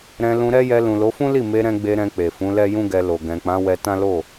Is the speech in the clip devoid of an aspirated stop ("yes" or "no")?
yes